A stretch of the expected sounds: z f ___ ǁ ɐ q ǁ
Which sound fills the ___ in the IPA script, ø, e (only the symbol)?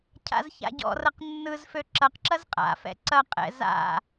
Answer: ø